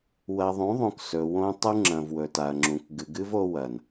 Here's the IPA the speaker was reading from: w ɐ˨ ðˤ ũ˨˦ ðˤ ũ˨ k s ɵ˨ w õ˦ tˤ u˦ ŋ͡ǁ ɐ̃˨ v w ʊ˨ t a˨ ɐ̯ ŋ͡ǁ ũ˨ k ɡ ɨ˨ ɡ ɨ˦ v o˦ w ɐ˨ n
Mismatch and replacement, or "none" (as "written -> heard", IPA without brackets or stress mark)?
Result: ʊ˨ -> ɵ˨